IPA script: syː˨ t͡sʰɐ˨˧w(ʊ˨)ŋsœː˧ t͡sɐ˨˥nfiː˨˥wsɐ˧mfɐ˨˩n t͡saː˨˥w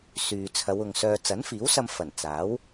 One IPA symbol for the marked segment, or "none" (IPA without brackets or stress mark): ʊ˨